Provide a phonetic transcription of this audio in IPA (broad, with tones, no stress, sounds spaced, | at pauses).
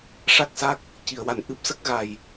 ʂ a˦˥ k̚ s a˦˥ k̚ | c i˨˩˨ ə̯ w a˨˩ n ʔ ɨ˦˥ p̚ s ə˦˥ k̚ ɣ a˨˩ j